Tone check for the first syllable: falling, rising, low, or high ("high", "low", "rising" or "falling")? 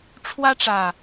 high